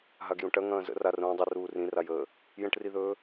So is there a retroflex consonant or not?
yes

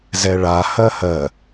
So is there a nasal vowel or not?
no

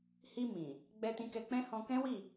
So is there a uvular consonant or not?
no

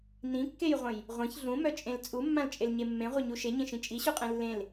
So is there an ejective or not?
yes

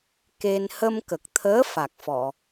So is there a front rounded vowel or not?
no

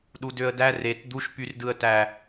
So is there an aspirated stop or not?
no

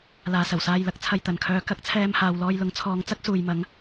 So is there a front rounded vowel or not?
yes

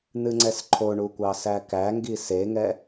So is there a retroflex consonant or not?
yes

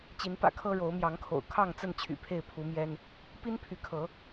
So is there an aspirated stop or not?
yes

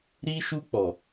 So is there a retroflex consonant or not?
no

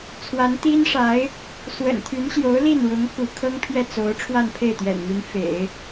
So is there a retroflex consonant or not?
yes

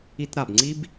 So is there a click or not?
yes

